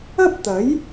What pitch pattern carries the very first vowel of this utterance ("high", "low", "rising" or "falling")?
high